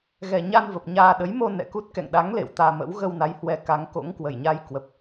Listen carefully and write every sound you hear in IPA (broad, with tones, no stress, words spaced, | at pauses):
ɣɛ˨˩ɲa˧n və˨˩p̚ɲaː˧ ɗə˨˦j mo˧ nɛ̰˧˨ku˦˥t̚ kɛ̰˧˨ŋɗa˨˦ŋ lḛ˧˨wt̪aː˧mə̰˧˥w ɣə˧wna˨˦jhwɛ˨˩ ka˨˦ŋko̰˧˥ŋkwə˧˩jɲa˧j kwə˨˩p̚